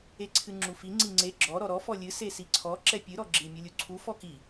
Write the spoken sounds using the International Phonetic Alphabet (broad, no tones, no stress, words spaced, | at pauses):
eǀʰɨŋ͡ǁufi ŋ͡ǀiŋ͡ǀe ɡ͡ǁɔ ɾɔɾɔ fɔlʲɨ sesiǀʰɔ ǁɛpʲɨ ɾɔɡ͡ǁi mʲulʲuǀʰu fɔki